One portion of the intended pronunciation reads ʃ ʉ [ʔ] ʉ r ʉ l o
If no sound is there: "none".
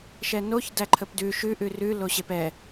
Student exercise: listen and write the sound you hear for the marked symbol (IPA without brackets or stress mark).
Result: ʔ